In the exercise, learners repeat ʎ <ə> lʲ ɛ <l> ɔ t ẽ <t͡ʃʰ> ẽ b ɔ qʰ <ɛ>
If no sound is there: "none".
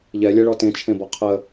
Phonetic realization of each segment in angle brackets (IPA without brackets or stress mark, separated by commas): ɛ, ɭ, t͡ʃʰ, ə